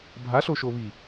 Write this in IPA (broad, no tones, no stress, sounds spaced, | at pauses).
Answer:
bʱ a ɬ o ʃ o β i